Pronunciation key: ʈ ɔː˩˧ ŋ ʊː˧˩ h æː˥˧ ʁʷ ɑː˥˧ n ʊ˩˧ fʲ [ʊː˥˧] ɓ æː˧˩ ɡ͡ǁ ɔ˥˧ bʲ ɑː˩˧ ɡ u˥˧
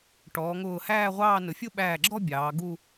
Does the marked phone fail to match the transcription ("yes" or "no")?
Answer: yes